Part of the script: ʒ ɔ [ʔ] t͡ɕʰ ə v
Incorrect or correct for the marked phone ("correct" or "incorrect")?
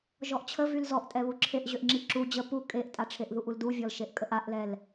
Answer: correct